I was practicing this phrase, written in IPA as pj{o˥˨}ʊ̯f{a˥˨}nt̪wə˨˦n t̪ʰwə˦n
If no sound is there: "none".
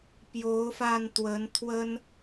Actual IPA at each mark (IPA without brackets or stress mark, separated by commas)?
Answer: o˨˦, a˧